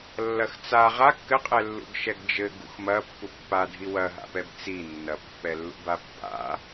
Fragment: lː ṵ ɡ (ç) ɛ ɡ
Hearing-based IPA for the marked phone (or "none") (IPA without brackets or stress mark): ʃ